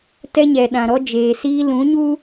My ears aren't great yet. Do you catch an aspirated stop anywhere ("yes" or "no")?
no